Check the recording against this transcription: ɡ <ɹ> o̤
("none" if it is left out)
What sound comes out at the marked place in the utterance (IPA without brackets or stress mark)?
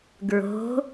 ɹ